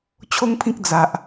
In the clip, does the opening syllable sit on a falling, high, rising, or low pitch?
high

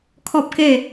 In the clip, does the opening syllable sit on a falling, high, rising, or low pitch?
high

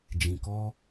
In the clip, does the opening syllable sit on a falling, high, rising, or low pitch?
low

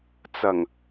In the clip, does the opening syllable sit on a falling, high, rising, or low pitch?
low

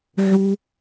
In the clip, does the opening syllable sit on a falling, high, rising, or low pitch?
low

